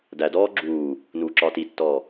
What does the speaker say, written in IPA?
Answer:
dædɔː ɡ͡ǁuː | nuːǁɒːtitːɔː

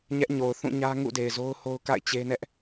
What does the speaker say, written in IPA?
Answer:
ɲɛ˦ʔɲo˨ʊ̯ θũ˦˨ɲä˦ ŋṵ˦˨ de˨ɪ̯zo˦ʊ̯ho˦ʊ̯ka̰˦˨ɪ̯ t͡ɕe˦nɛ˦ʔ

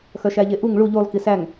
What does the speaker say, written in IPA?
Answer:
xœʃæʎeʔuŋ ɭu ʎulˠ kisæŋ

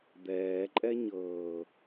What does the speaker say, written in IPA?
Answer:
d̪ɛː ǃʼɛɲɤː

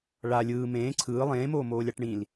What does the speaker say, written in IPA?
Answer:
ɭa lʲɯː mẽː ǀʰɯː lˠẽːmoː moːlʲaʈɳĩl

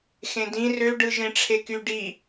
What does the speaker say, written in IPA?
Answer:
xẽdĩ røɖɯʒẽ ʈ͡ʂʰeky ɖi

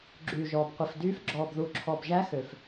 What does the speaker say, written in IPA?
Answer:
ɡ͡ǁyː˨ʒɔː˨b qʷi˨fdyː˦˥f ɡ͡ǁɔː˨bðu˨ǁʰɔ˨b ʒæ˦˥xø˨f

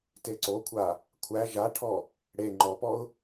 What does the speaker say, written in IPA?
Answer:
teǀokʷʰa | kʷʰæ ʒaʈʰɔ | ɽe ŋ͡ǃɔpɔʊ̯

